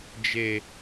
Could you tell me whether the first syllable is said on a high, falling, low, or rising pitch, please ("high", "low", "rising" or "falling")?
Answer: high